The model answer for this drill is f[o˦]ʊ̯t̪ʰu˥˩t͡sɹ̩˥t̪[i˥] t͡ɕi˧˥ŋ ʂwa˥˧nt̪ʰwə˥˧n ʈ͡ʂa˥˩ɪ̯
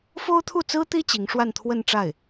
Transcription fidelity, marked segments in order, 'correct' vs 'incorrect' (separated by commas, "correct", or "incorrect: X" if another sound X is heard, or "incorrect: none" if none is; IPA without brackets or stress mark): incorrect: o˥, correct